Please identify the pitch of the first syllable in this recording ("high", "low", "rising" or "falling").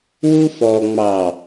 high